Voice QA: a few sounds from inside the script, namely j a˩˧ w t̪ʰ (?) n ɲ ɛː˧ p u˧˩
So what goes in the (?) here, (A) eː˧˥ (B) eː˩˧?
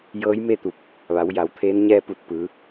A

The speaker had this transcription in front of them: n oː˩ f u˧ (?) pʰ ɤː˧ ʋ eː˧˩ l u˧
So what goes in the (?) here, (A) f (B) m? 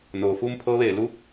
B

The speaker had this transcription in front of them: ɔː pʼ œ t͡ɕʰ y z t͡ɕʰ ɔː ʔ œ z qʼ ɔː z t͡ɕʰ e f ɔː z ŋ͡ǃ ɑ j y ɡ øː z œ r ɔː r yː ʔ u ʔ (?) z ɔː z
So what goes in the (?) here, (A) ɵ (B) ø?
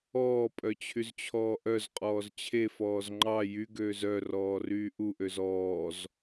B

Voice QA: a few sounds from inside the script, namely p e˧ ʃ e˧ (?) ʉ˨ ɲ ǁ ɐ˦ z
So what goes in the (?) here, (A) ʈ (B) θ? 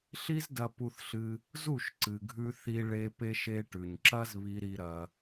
A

